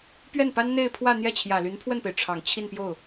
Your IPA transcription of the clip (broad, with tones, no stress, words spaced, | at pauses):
pɥɛ˥˩npa˥nn̪e˥˧ɪ̯ pʰwä˥˧n̪jɛ˥˩t͡ɕʰjä˨˩ly˧˥n pʰwə˥˩npe˩ɪ̯ ʈ͡ʂʰɑ˨˩ŋ t͡ɕʰi˥˧npjo˥˩ʊ̯